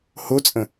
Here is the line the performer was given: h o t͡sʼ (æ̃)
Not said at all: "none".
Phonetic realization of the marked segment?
ə̃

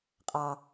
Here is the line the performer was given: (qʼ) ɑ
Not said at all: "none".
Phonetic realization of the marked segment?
qʼ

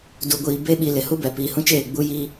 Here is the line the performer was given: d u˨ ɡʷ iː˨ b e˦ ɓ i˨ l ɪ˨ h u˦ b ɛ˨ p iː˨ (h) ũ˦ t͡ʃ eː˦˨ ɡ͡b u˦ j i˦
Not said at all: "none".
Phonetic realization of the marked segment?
h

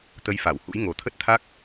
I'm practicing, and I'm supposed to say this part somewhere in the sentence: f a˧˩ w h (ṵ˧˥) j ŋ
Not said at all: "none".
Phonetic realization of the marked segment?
ṵ˧˥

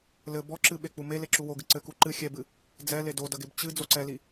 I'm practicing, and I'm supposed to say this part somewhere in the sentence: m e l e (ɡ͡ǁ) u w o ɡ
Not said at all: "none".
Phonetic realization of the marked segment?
ǁ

